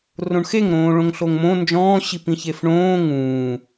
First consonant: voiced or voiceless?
voiced